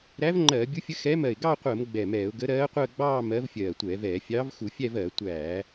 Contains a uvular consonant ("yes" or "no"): yes